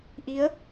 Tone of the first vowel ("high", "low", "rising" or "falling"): rising